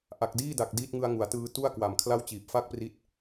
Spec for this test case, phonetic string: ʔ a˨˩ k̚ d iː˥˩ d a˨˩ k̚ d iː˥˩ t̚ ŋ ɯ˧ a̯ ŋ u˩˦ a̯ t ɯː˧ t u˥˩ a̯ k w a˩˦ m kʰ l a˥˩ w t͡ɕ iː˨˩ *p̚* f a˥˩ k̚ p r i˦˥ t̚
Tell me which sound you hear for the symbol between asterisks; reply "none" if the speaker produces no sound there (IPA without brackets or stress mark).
p̚